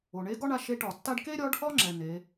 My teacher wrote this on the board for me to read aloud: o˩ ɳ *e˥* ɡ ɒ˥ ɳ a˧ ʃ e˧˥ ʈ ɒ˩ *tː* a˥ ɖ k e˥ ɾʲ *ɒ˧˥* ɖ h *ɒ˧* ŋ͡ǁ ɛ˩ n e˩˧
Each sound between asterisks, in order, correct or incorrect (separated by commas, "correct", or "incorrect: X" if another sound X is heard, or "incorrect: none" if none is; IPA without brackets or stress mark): incorrect: e˧˥, correct, correct, incorrect: ɒ˥